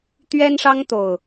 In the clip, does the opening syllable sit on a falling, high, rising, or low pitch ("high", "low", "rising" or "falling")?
high